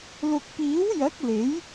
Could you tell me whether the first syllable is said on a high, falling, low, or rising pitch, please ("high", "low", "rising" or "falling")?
low